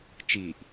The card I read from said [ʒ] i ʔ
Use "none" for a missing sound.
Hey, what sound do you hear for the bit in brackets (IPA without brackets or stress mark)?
t͡ʃ